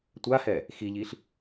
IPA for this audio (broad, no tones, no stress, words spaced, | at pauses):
tʷahɛ | xiʎiɬ